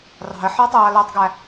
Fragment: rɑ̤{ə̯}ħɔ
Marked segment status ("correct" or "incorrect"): correct